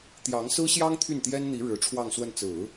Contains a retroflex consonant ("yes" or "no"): yes